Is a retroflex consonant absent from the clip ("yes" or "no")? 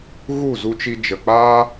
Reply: yes